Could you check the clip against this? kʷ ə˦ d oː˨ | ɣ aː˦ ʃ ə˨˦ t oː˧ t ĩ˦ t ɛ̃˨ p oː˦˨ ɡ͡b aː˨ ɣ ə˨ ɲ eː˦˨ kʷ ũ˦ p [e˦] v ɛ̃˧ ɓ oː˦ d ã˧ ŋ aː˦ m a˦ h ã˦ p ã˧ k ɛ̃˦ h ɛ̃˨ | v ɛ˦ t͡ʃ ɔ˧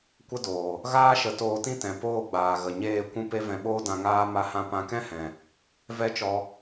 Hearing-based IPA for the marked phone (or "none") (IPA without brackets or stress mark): e˦